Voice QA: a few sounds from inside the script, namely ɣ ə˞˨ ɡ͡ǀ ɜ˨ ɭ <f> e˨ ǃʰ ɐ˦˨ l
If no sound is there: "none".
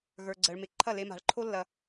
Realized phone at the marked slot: m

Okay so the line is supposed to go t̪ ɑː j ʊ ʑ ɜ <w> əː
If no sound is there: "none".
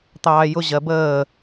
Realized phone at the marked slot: b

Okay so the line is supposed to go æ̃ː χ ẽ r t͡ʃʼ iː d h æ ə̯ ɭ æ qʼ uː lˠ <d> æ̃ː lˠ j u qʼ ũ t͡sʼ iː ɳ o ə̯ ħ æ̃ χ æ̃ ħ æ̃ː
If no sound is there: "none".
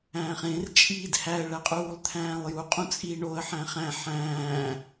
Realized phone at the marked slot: t̪ʰ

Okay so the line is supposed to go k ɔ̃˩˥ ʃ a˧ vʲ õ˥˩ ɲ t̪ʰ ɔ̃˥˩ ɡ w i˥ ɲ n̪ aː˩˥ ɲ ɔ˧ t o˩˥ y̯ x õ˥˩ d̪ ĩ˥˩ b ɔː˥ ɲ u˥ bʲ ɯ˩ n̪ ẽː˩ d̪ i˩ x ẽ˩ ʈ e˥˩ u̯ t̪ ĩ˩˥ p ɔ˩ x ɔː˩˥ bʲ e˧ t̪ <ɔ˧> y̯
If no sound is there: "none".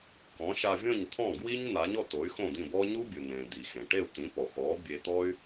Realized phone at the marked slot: ɔ˥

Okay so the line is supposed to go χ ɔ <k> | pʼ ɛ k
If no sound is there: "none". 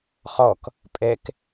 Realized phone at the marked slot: k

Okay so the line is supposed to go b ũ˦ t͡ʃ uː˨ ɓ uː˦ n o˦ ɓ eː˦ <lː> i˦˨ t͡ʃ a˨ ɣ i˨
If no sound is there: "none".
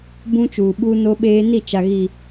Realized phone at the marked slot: n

